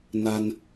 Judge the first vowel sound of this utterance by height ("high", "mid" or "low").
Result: low